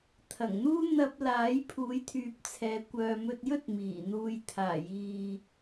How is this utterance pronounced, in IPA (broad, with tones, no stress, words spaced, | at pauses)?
t̪ʰɐ˨˩ŋn̪uː˥ n̪ɐ˧p̚ laː˨˥jpʰuː˨˥jt̪ʰyː˨p̚t͡sʰɛː˨ kʷœː˨mɵ˧t̚jɵ˥t̚ miː˨˩n̪uː˧j t̪ʰaː˨˩jiː˨